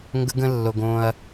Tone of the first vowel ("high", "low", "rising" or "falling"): high